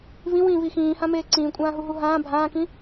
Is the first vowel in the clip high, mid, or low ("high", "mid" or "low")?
high